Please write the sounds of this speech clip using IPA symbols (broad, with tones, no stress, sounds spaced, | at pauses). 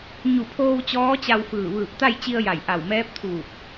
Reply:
ɲ u˧˩ pʰ oː˧ w t͡ɕ ɔː˧˥ t͡ɕ a˧ w f ɯː˧˩ ʋ ɯː˧˩ p̚ t̪ a˥˨ j t͡ɕ i˧ ə̯ j a˧˩ j ʔ a˧˩ w m ɛː˧˥ p̚ t̪ʰ uː˧˩ p̚